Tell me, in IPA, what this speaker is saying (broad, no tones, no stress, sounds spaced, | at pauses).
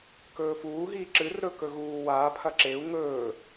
k ɵː f uː ɦ iː ǁ ɨ r ɾ ɵ k ɵ ɣ uː w aː pʰ ɐ ǁ e u̯ ŋ ɵː